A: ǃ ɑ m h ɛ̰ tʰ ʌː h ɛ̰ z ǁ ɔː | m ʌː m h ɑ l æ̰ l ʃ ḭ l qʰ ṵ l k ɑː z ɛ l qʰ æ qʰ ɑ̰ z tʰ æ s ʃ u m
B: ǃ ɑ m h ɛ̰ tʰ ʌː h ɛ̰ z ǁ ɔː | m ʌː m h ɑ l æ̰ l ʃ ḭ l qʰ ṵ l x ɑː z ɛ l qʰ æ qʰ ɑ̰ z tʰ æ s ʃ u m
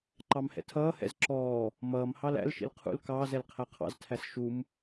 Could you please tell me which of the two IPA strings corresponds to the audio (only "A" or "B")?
A